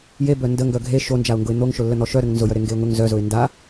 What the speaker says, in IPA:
j e b œ n d ə ŋ ɡ œ ɡʱ e ʃ o n d͡ʒ a ʊ̯ ŋ ɡ ʊ ɪ̯ n̪ o ŋ ʃ ʊ lː ə n̪ ɔ ʃ œ ɾ ə ŋ n z ʊ j œ ɾ e ŋ ɡ e ʊ̯ ŋ ʊ ŋ z œ z ʊ ɪ̯ n d a

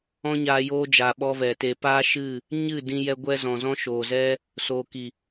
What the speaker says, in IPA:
ɔ̃˦ ɲ aː˧ j oː˦ d͡ʒ a˨ ɓ ɔ˧ v ɛ˨ t e˨ p aː˦ ʃ ɨ˦˨ | ɲ ɨ˦˨ d ĩ˧ j ɛ˧ ɡʷ ɛ˧ z ɔ̃˨ z ɔ̃˧ ʃ oː˨ z ɛ˧ | s oː˨ k i˨

